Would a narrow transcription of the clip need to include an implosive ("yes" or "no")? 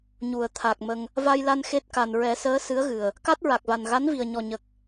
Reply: no